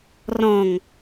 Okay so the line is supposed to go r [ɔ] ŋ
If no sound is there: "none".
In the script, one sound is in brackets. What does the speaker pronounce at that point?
ɔ̃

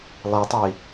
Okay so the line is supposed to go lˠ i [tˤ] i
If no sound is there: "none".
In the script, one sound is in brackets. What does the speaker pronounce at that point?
tˤ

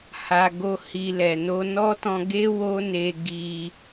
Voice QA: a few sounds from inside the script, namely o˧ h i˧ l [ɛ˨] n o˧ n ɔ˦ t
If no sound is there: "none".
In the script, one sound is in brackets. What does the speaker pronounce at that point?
ɛ˨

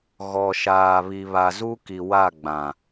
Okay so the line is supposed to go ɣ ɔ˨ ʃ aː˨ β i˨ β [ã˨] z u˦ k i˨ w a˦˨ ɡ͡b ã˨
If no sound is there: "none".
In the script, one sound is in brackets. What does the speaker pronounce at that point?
a˨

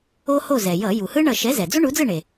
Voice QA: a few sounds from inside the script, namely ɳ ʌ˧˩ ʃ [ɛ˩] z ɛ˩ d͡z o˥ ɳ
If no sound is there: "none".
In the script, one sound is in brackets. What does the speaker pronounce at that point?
ɛ˨˥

